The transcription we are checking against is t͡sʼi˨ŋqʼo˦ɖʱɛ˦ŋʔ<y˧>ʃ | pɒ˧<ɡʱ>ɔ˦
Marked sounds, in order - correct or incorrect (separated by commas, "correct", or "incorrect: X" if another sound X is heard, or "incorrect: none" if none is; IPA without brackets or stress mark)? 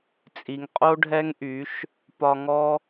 incorrect: y˨˦, incorrect: ŋ